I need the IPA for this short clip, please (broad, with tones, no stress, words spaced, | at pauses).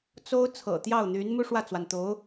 t͡so˥ʊ̯ t͡sʰɤ̰˨˩t̪jɑ˥˩ʊ̯n̪y˧˥n mu˥ʂwä˥˩t͡swa˩nt̪o˧˥ʊ̯